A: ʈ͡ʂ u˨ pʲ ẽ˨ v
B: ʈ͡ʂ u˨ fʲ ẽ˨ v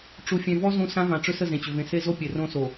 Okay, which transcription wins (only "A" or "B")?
B